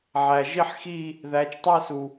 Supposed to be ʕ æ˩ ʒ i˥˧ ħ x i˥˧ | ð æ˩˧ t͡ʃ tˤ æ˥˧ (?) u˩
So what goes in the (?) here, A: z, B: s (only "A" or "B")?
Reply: B